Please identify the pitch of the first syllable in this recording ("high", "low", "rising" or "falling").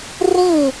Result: falling